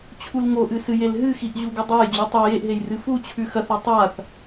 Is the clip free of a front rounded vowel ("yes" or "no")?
yes